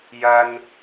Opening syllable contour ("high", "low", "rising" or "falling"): high